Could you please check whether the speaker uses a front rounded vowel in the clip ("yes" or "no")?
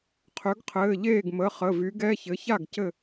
yes